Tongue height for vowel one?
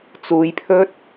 high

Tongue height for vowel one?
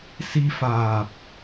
high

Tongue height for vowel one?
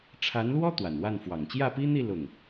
low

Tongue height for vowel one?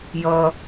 mid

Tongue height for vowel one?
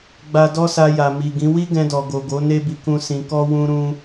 low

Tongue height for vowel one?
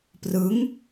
high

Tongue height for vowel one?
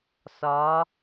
low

